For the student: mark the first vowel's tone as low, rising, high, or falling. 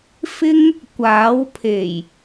high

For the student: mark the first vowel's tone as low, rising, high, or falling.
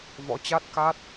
rising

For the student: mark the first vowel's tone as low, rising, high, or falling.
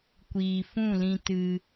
low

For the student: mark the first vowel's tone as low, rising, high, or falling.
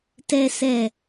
low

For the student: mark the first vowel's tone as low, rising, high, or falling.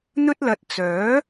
high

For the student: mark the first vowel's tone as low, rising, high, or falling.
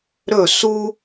falling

